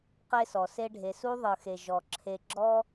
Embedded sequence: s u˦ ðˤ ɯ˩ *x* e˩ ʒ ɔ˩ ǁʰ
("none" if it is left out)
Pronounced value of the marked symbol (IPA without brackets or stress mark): x